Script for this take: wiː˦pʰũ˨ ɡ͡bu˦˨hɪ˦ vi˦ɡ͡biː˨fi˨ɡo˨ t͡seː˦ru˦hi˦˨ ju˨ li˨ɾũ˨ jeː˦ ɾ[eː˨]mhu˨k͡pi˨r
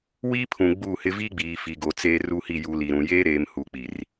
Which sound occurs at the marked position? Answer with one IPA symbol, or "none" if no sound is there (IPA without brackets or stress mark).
eː˨